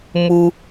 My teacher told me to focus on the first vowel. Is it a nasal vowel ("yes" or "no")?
no